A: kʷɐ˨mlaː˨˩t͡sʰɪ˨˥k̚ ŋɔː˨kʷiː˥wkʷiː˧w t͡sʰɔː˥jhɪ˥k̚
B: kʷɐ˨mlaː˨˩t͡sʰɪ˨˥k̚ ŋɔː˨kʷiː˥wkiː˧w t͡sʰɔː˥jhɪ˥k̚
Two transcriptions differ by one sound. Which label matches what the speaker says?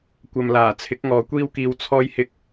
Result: B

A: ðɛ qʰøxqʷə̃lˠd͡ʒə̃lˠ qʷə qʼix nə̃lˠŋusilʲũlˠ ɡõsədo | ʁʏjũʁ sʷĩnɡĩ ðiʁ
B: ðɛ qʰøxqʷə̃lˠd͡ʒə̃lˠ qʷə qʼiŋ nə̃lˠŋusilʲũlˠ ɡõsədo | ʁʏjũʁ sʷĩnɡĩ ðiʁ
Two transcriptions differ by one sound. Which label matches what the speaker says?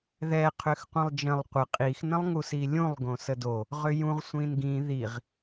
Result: A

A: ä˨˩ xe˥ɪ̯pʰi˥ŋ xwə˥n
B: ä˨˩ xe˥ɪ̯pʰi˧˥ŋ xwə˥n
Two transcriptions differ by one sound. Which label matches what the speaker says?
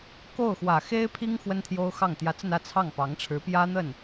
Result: A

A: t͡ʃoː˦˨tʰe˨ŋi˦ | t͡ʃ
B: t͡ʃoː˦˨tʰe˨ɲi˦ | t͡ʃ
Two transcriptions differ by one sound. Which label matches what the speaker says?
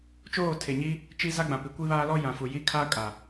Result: B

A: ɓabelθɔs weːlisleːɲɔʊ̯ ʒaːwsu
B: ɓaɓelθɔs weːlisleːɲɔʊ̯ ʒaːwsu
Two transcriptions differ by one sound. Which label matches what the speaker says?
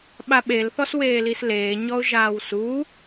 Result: B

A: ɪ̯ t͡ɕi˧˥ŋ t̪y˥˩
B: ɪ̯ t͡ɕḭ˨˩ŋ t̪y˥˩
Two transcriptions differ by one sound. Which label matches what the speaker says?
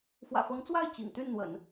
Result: B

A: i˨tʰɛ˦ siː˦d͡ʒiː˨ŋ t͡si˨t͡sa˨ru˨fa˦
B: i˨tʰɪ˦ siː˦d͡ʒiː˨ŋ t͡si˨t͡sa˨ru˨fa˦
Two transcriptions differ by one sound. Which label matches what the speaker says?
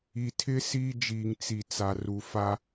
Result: B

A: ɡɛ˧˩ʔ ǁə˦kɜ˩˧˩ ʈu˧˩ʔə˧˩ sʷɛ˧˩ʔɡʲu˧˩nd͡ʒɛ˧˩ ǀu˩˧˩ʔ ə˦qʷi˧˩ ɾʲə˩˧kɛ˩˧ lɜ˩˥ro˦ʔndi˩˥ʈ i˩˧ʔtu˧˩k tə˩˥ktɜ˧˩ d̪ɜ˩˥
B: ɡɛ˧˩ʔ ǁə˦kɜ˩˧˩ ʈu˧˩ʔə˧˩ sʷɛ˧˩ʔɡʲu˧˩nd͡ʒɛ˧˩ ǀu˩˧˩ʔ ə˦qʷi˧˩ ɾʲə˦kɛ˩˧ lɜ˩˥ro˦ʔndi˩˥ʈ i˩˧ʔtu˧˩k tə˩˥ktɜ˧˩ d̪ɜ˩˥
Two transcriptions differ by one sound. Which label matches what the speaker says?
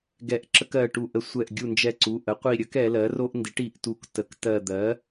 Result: B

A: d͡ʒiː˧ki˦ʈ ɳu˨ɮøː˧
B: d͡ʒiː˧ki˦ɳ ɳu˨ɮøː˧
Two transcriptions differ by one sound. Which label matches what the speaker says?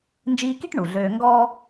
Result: A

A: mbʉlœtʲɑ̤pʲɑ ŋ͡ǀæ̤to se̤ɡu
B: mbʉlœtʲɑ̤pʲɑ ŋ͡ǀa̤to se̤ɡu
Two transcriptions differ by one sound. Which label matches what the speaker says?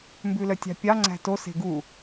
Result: A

